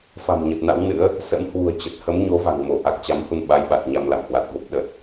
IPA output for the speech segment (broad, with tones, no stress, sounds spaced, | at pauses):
f a̤˨˩ m ɲ ə˨˩ t̚ n a̰˧˥ w n ɨ̰˧˥ ə̯ | s ə̰˧˥ m h w ṳ˨˩ ə̯ t͡ɕ ə˨˩ t̚ h ə˨˦ m ɲ o˨˦ v a̤˨˩ ŋ m o˧˩ ʔ a˨˩ k̚ t͡ɕ a˨˦ m h u˧ n ɓ a˨˦ j ɓ a˨˩ t̚ ɲ a˧ m l a̰˧˨ m h w a˨˩ t̚ v o˦˥ p̚ ɗ ə˨˩ t̚